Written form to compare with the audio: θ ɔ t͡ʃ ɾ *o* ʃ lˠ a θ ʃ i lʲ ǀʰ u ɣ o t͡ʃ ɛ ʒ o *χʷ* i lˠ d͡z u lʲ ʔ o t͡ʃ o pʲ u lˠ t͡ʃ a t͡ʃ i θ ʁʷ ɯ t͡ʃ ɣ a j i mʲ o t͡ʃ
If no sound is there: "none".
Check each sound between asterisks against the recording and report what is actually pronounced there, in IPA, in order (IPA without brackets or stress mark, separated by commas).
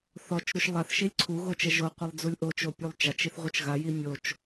u, qʷ